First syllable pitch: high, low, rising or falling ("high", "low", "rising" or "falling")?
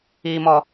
high